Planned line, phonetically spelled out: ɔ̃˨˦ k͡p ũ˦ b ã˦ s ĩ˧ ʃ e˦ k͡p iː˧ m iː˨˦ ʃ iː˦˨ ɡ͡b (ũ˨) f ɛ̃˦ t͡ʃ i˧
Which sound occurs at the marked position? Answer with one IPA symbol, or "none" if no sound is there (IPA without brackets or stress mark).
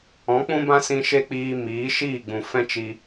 ũ˨